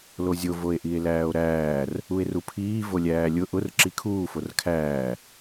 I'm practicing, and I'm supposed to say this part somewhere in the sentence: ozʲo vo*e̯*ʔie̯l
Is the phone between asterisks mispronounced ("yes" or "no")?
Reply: no